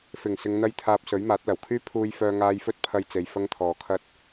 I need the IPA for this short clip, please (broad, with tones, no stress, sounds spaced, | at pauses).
f ɪ˨˩ ŋ s ɪ˨ ŋ n̪ ɐ˥ j t̪ʰ aː˧ p̚ s ɵ˨˥ ɥ m aː˨˥ t̚ l ɐ˨˩ w kʰ yː˥ pʰ uː˧ j f œː˧ ŋ aː˧ j f ɵ˥ t̚ pʰ ɐ˧ j t͡s e˨ j f ɐ˥ ŋ t̪ʰ ɔː˨ kʰ ɐ˥ t̚